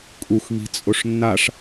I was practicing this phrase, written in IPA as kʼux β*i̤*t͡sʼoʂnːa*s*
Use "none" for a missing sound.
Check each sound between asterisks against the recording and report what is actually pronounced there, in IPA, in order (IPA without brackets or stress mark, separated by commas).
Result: i̤, ʂ